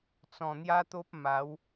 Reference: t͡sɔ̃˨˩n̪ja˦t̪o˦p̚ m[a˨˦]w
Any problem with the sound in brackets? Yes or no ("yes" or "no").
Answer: no